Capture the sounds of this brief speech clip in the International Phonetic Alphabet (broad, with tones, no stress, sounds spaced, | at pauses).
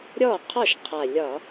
ɾʲ ɔ˥˩ qʰ ɔ˥˩ ʃ qʰ a˨˩ lʲ ɒ˧˩˧